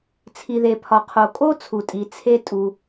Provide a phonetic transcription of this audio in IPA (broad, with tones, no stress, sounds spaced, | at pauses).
t͡sʰ i˩ ð e˩ pʰ ɒ˩ qʰ o˩ kʼ o˥ t͡sʰ u˩ tʼ i˩ t͡sʰ e˥ tʼ u˩